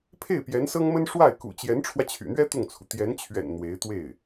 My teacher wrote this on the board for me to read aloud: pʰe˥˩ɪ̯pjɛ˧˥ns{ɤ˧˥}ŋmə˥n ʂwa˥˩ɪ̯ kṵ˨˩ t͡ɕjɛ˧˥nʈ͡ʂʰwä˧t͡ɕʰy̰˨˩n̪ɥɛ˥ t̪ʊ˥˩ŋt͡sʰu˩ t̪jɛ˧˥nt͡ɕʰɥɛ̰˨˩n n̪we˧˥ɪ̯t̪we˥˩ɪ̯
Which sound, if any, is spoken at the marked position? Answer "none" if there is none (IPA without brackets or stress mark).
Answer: ɤ˥